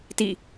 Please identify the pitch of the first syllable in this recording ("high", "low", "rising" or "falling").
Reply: falling